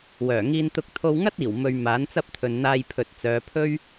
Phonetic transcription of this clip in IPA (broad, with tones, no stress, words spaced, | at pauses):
wœː˨˩ ŋiː˧nt̪ʊ˧k̚ t̪ʰo˧wŋɐ˥t̚iː˨˩wmɵ˨ɥ maː˨˥nt͡sɐ˥p̚t̪ʰɵ˨nn̪aː˧j pʰɵ˨t̚t͡sœː˨˧pʰɵ˥ɥ